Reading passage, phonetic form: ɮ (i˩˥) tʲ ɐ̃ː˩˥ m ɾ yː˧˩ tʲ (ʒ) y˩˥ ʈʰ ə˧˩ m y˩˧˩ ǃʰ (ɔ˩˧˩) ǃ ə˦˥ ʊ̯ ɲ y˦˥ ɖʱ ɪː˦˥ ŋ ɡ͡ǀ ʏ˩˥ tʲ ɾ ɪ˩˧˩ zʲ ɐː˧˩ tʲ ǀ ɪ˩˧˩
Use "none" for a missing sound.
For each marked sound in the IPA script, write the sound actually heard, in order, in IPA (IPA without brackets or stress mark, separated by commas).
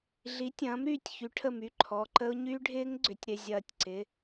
i˩˥, ç, ɔ˩˧˩